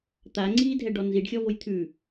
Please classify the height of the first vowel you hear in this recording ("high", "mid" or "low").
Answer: low